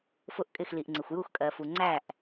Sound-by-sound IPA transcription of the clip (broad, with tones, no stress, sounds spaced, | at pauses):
f ʊ˧˩ ʔ kʼ ɪ˧˩ x l i˩ ʔ ŋ͡ǀ ɪ˩ xʷ j u˧˩ x kʼ ɜ˩ f u˩ ŋ͡ǀ æ˧˩ ʔ